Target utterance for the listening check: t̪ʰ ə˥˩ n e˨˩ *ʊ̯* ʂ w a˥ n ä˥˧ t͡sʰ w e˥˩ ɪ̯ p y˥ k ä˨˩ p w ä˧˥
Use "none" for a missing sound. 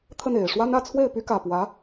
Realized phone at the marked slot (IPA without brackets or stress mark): ɪ̯